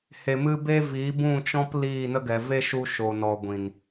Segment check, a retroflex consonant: absent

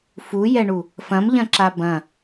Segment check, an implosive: absent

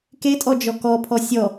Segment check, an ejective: present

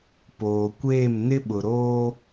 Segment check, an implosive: present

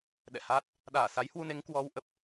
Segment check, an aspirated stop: absent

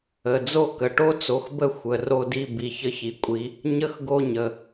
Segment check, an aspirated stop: absent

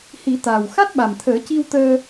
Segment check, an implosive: present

